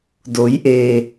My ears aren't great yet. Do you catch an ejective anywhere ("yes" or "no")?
no